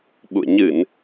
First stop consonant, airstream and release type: implosive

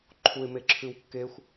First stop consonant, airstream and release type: click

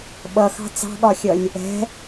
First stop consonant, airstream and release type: implosive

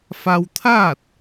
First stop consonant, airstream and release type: aspirated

